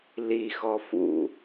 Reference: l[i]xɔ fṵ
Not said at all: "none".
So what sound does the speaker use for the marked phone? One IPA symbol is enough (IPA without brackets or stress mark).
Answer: i